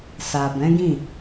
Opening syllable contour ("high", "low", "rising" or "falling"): low